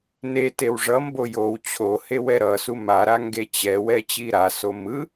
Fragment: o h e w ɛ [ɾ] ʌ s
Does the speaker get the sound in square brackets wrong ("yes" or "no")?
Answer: no